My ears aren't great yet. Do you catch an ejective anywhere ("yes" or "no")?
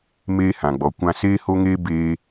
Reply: no